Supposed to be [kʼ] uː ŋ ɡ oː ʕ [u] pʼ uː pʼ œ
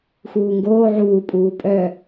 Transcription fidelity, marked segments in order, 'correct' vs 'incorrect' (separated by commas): incorrect, incorrect